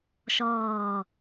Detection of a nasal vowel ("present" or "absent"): absent